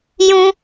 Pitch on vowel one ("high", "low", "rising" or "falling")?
high